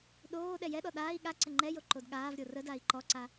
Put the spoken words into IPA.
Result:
ɗ oː ɗ ɛ j ɛ ɗ ɔ ɗ aː i̯ ɠ a ǀ ə ŋ͡ǃ ɛ j o ǃ o d ɠ aː v ɾʲ o r ə d a i̯ ǃ ɔ ǀ a

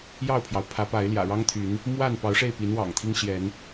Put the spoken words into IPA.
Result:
j ɑ˥˨ ʊ̯ pʰ j ɑ˩ ʊ̯ pʰ ä˨˦ p a˨˦ ɪ̯ l j ä̰˨˩ ɻ ɑ˦ ŋ t̪ʰ y˨˦ n | m w a˥˨ n p ɑ˨˦ ʊ̯ ʂ e˥˨ ɪ̯ p i˨˦ n w ɑ̰˨˩ ŋ t̪ʰ i˦ ŋ ɕ j ɛ˨˦ n

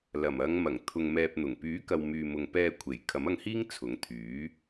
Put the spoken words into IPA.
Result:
l ɐ˨˩ m ɐ˨˧ ŋ m ɐ˨˩ ŋ t̪ʰ ʊ˨ ŋ m ɛː˨ p̚ n̪ ʊ˨˩ ŋ p yː˨˥ k ɐ˨ w m yː˨ m ʊ˨ ŋ p ɛː˧ kʷʰ e˨˩ j kʰ ɐ˨˥ m ɐ˧ ŋ h iː˥ ŋ t͡sʰ ʊ˨˥ ŋ t̪ʰ yː˨˥

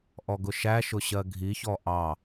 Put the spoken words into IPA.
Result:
ʔ ɔ ɡ ʊ ʃ æ ʃ ʊ ɕ ɜ ɡʱ i ç ɔ ʔ ɑ

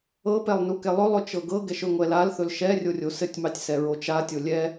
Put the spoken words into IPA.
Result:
ɤ p ɛ lˠ n u k ɛ lˠ ɵ lˠ ɵ t͡ʃ ɤ ɡ ɤ ɡ ɛ ʃ ɵ ŋʷ ɛ l a l θ ɵ l ʃ ɛ rʲ o rʲ o s ɘ tʲ m ɑ tʲ s ɛ ɹ o t͡ʃ a tʲ o lʲ ɛ

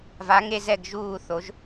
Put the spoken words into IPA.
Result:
v a˨˥ ŋ e˦ z ɛ˥˨ ɡ ʒ uː˥˨ θ o˨˥ ʒ

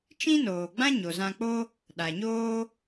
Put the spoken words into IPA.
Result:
t͡ʃ ĩ˦ n oː˨ ɡ͡b ã˦ ɲ o˨ z ã˧ k͡p o˦ | ɗ a˨ ɲ oː˦

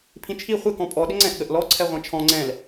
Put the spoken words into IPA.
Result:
pʰ ĩ t͡ʃʰ i χʷ ɪ k ɔ̃ pʼ ɔ ɗ ɪ ŋ͡ǀ ɛ̃ ʔ ɠ ə ʔ l ɔ ǀʰ ɛ ʁʷ ɛ̃ t͡ʃʰ ɔ̃ ŋ͡ǀ ɛ̃ l

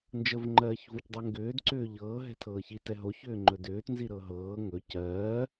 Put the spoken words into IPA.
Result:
n d͡ʒ ə v ŋ͡ǃ ɜː ç v o c dˤ ɛ ŋ ɡ ʏː d ǀ ʏː ʎ ɤː ɦ ɛ̤ tʰ ɤː ç i t ɛ ɦ o ç ʏː ŋ͡ǃ ɵ d ʏː t n z i ɾ ɤ ɦ ɤː ŋ ɵ c ɜː

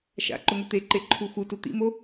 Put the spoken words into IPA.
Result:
ʃ a̰ ǃ ʊ ŋ ʊ t̪ e ǃ e ǃʰ u x u t u t̪ ḭ m o

